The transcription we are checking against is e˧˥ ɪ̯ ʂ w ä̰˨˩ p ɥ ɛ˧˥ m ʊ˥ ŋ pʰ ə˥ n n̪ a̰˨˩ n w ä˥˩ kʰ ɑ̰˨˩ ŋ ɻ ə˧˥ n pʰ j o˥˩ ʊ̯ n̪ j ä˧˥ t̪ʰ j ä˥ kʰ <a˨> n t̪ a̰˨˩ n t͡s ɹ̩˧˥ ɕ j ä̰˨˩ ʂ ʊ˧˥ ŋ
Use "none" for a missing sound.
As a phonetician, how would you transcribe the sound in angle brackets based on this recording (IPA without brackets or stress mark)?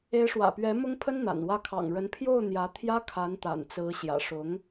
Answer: a˧˥